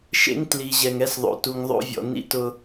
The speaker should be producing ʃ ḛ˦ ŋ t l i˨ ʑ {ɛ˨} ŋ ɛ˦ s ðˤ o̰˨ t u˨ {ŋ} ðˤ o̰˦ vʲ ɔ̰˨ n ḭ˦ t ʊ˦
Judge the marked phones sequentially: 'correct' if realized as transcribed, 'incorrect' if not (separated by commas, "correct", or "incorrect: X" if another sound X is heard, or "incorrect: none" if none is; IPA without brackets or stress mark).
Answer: correct, correct